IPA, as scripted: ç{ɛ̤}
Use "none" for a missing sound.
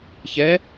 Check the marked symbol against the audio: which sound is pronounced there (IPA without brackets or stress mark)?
ɛ